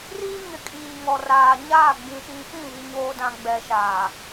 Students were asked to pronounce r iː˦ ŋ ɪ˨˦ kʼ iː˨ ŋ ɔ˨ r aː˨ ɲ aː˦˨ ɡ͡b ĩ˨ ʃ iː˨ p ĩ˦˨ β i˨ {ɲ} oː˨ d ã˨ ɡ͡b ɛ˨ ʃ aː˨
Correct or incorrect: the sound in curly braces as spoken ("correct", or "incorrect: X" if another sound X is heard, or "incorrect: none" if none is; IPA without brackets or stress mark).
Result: correct